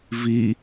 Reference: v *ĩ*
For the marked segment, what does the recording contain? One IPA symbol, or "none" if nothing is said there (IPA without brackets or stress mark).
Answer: i